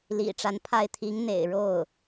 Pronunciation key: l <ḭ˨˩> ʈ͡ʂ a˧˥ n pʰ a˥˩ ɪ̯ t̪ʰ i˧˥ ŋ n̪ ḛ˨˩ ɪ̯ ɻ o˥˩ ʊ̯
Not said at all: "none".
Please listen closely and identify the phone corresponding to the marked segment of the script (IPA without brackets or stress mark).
ḭ˨˩